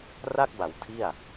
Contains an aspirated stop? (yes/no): yes